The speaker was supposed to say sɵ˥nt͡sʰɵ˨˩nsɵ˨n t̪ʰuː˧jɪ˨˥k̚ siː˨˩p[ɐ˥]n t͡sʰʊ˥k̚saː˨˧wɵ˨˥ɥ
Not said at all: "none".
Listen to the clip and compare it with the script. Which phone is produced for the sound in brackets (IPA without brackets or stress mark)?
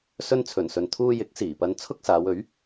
ɐ˧